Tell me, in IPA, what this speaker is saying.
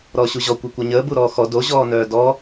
ɾ ɔː ɕ u ʑ ɔ kʷ ɛ kʷ œ ɲ əː b u ɾ ɔː x ɔ d o ʑ ɔː n œː d ɔ

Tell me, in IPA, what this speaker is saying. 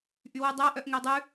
ʔ y w u dˤ æ ʔ œ ʔ ŋ e dˤ ʉ

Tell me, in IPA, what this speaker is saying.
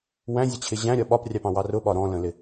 w æ̃ zʲ ə t͡ɕʰ ɪ ʑ æ̃ ɾʲ ɒ ɓ ɒ p rʲ ɑ p ɑ̃ w ɑ r ʊ ɓ ɒ ɾ ɔ̃ l ə̃ l ɪ

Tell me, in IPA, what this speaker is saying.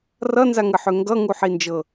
r ʌ n z a ŋ ə ħ ø ŋ ɡ ʌ ŋ u ħ i n d͡ʒ ɤ

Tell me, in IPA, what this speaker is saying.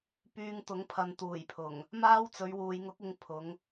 p yː˧ ŋ t̪ ʊ˨˥ ŋ pʰ ɐ˨˧ n t̪ uː˨˩ j pʰ ʊ˨˩ ŋ | m aː˥ w t͡s ɵ˨˧ ɥ w uː˨ j ŋ ʊ˨˥ k̚ ɪ˨˧ ŋ pʰ ʊ˨˥ ŋ

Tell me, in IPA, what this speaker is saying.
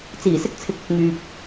t͡s iː˨˩ s ɪ˥ k̚ t͡sʰ ɪ˨˥ k̚ ɪ˨ k̚ ŋ yː˨ p̚

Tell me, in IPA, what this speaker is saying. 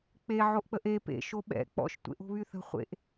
k͡p e ʕ o ʔ k͡p ə ʔ e p ḛ ʃ o ɓ ɛ̰ k͡p ɔ̰ ʃ tʷ ḛ ʔ o̤ β y θ ə̤ χʷ ḛ ʔ

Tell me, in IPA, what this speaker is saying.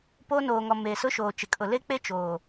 p o˦ n oː˨ ŋ ɔ˨ m eː˨ s ʊ˦ ʃ oː˨ t͡ʃ ɪ˨ kʼ ʊ˨ l e˦ k͡p e˦ t͡ʃ oː˨

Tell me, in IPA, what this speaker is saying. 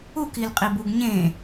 u k i l qʼ i b u ɡ ɲ ẽ

